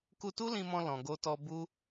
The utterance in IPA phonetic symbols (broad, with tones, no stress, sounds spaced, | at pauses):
k u˧ t u˦ l ĩ˧ m ɔ̃˧ l ɔ̃˧ ɡ o˧ t ɔ˧ b u˦